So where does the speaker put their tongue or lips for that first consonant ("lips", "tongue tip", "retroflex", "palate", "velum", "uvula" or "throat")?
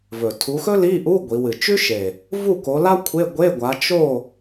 lips